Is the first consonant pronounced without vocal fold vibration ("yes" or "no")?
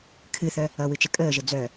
yes